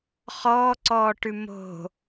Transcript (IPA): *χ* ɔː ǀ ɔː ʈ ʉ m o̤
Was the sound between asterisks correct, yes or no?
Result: yes